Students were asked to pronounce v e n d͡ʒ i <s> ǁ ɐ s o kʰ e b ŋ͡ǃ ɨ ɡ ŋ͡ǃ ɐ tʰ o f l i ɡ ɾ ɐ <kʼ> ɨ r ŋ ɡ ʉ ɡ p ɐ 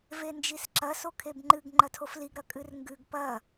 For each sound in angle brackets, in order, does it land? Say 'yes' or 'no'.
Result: yes, yes

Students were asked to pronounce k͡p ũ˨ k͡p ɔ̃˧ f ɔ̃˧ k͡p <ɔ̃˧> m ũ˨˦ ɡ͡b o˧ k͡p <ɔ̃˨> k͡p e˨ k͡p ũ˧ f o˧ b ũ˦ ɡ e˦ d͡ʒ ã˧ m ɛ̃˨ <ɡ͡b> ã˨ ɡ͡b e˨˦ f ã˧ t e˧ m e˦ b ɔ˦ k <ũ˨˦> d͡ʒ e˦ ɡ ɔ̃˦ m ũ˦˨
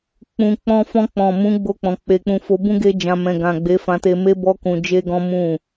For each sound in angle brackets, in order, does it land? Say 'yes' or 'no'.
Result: no, yes, no, no

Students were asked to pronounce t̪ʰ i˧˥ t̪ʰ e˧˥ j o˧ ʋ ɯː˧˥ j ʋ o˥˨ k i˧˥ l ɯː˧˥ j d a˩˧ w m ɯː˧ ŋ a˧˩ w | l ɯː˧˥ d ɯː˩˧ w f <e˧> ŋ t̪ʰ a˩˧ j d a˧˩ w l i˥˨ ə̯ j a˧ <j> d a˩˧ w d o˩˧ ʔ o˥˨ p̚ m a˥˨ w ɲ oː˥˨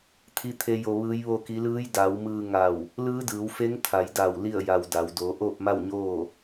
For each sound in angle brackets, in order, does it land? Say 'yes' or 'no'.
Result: no, no

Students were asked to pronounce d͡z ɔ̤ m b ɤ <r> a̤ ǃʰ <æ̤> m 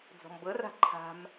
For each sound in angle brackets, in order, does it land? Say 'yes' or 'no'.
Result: yes, no

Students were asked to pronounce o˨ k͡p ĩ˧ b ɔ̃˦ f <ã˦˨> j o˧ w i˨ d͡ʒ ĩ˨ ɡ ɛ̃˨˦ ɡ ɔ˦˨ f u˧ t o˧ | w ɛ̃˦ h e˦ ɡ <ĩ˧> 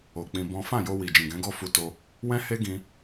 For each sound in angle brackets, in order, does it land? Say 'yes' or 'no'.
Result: yes, yes

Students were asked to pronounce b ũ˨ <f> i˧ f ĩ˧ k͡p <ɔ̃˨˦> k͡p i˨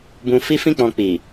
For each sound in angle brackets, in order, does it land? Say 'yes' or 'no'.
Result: yes, no

